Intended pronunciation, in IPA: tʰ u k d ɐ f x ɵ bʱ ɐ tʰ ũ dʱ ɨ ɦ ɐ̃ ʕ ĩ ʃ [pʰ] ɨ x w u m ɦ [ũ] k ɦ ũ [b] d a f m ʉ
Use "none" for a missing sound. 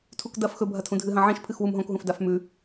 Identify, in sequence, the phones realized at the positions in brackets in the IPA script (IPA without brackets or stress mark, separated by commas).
pʰ, õ, f